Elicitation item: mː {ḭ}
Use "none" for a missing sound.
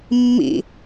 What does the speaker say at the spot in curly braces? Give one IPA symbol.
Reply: ḭ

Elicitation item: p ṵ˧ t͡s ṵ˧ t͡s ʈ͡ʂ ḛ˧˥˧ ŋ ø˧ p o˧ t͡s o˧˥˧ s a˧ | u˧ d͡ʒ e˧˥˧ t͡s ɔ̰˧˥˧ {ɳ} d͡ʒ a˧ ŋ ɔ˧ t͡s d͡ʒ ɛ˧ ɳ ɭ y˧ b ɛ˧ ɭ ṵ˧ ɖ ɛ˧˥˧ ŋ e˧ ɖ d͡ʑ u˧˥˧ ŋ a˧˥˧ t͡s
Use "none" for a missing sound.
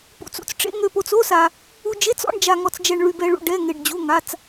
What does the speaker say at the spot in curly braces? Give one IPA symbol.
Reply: ɳ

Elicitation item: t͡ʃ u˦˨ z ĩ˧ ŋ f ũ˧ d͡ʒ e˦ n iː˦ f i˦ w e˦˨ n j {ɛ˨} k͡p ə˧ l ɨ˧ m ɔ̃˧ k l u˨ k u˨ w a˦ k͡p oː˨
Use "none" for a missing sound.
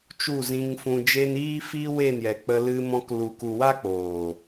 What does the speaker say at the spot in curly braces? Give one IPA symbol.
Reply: ɛ˨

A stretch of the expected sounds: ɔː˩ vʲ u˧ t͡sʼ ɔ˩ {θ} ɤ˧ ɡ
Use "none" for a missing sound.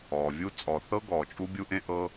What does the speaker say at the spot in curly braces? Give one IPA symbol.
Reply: θ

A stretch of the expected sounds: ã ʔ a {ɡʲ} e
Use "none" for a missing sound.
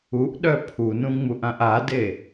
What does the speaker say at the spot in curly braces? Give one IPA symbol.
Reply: d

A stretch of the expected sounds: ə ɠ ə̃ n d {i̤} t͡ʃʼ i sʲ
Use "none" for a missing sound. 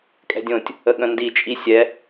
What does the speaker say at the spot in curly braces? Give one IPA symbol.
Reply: i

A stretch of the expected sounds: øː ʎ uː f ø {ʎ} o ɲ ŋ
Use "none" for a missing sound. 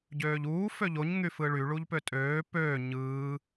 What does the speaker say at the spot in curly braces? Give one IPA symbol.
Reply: ʎ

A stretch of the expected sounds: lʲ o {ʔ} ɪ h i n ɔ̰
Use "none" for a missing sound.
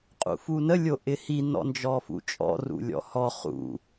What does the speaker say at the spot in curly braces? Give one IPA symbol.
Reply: ʔ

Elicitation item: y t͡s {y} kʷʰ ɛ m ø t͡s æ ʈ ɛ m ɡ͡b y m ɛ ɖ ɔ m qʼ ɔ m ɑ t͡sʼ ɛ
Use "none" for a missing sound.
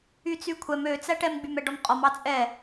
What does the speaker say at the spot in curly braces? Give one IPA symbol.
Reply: y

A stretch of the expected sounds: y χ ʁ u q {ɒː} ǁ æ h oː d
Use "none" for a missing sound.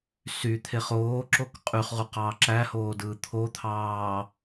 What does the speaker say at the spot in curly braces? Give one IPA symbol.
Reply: ɑː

